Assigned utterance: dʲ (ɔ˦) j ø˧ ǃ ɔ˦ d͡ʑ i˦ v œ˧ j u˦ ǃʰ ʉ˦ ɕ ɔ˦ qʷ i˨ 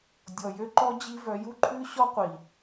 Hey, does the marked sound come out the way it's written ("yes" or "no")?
no